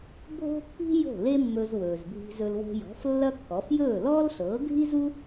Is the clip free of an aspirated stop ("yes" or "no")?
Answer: yes